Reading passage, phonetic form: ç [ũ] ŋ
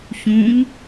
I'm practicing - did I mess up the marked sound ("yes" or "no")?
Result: no